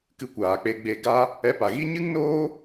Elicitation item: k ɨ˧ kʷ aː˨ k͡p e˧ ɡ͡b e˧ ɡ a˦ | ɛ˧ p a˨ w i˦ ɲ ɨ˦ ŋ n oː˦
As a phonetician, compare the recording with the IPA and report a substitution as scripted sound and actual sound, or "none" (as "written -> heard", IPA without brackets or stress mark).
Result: w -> ɣ